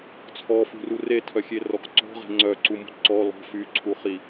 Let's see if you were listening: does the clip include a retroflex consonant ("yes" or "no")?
no